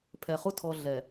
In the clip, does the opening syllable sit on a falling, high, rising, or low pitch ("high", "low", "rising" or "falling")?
low